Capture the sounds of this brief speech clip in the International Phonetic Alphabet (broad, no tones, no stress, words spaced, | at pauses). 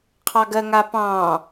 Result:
qʰɑɡɜŋapɑ̃ː